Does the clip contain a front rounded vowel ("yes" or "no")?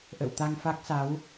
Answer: no